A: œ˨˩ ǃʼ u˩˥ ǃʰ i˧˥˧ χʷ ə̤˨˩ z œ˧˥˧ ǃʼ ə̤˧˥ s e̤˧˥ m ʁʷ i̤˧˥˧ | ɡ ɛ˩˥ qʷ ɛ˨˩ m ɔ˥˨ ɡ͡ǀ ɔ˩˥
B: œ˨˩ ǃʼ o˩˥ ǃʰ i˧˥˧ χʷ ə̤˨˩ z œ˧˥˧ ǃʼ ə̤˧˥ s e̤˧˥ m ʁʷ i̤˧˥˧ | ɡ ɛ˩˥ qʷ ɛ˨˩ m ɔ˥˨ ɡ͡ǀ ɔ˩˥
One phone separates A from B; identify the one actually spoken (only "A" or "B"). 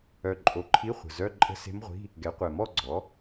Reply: B